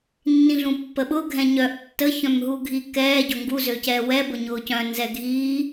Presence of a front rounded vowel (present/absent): present